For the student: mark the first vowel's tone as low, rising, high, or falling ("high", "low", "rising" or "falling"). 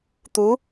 rising